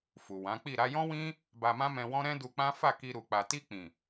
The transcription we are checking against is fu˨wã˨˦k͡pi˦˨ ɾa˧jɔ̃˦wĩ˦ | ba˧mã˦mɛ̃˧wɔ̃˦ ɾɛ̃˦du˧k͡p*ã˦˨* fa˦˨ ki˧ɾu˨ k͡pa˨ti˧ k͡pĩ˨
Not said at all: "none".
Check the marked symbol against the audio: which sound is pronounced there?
ã˦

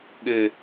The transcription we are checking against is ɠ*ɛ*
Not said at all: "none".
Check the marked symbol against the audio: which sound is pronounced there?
ɘ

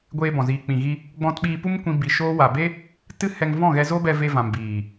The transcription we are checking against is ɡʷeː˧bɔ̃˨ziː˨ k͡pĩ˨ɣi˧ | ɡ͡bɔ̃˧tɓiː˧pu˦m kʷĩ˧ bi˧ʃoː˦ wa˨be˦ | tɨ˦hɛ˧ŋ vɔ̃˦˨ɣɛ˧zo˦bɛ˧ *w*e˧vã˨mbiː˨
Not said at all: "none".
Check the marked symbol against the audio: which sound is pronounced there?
v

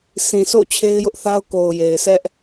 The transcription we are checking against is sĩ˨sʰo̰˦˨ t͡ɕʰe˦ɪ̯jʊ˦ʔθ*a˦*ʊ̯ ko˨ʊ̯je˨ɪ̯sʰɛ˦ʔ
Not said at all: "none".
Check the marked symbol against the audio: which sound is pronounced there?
a˦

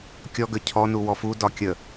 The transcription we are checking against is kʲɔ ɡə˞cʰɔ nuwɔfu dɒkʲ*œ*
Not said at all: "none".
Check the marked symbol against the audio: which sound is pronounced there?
ə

